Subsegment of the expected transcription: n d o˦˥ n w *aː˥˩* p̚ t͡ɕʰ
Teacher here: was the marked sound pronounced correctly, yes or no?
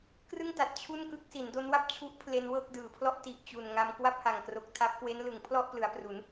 no